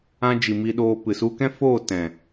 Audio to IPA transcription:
ã˧ d͡ʒ i˨ m i˧ ɗ oː˧ p ɨ˨ s u˧ k ɛ̃˦ f oː˦˨ t ɛ̃˨

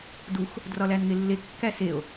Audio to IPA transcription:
d u x | d r ɒ l æ n ŋ e lː e kː æ s e o̯

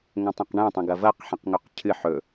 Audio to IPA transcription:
ŋ õ tˤ ẽ q ɳ ẽ tˤ ɐ̃ ɡ ɐ v ɐ q ħ ẽ q ŋ ɵ q cʰ ɨ ħ ɵ

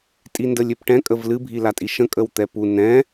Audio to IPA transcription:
tʼ i n d ə lʲ ø p ʈ ɛ̃ kʼ ə v l ɨ bʱ i l a tʼ i ʃ ə̃ kʼ ə w t̪ ɛ p u n ɛ̃

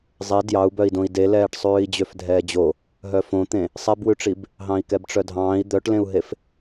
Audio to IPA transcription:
zˤ e d j ɑ u̯ b œ i̯ d õ i̯ d e l ɛː ʈ sˤ ʉː i̯ d͡ʑ ø f dʱ ɛː d͡ʑ o | ɦ œ f õ t̪ ẽ | sˤ ɛ b w ʉ ʈ͡ʂ i b | ɦ ɑ̃ i̯ k ɛ b ʈ͡ʂ œ dʱ ɑ̃ː i̯ d̪ œ ʈ l ẽ u̯ ɦ e f

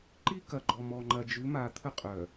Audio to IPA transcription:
ǃ i˦ k ɐ˨ ɡ͡ǃ ɔ˨ m ɔ˨ ŋ͡ǃ ɐ˨ d͡ʒ ʉ˨˦ m a˨ t̪ʰ ə˦ qʼ œ˨

